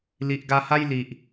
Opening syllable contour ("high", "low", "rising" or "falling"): low